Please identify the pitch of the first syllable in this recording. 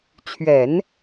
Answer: low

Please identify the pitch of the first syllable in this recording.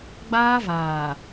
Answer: high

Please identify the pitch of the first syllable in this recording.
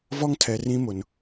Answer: high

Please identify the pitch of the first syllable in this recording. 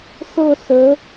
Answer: falling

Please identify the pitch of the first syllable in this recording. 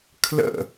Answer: falling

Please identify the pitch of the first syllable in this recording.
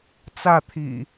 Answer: falling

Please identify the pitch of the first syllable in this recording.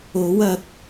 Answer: rising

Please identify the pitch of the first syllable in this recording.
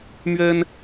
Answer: high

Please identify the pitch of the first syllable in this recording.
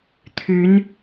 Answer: rising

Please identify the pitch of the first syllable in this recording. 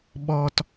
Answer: high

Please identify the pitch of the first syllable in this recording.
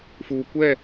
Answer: low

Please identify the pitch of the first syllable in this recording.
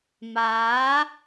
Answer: rising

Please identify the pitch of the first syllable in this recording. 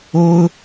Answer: high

